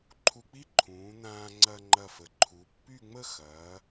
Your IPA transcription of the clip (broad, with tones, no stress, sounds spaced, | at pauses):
ǃʰ u˧ k͡p i˥ ǃʰ ũː˩˧ n̪ ãː˧ ŋ͡ǀ ɐ˧ ŋ͡ǃ ɐ˧˩ f ə˩˧ ǃʰ u˩˧ pː y˥˧ ŋ͡m ə˥˧ x ɐː˩˧